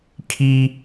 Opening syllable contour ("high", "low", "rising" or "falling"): high